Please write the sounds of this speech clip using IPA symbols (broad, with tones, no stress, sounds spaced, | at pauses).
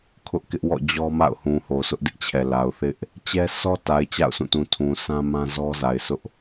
kʰ ʊ˦ ʔ k ɪ˦ ʔ w ɔ̰˦˨ d͡ʑ ɔ˦ m a̰˦˨ ʊ̯ h ũ˨ h o˨ s ʊ˦ ʔ d ɪ˦ ʔ t͡ɕʰ ɛ˨ l a˨ ʊ̯ θ ɪ˦ ʔ | t͡ɕ ɛ˦ sʰ ɔ˦ t a˨ ɪ̯ t͡ɕ a̰˦˨ ʊ̯ s ũ˦˨ t ũ˨ tʰ ũ˨ s ã˦ m ã˦ z ɔ˦ z a˨ ɪ̯ sʰ ʊ˦ ʔ